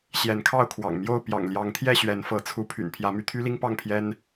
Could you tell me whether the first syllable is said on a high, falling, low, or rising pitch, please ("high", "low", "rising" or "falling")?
rising